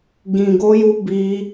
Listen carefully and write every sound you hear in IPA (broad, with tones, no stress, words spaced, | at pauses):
ɡĩ˧ɡo˦ju˦ bi˦